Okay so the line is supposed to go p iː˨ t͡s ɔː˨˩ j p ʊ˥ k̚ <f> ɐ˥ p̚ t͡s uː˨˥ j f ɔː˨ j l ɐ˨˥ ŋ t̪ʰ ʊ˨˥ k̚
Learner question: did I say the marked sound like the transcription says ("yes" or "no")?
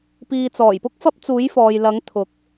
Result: yes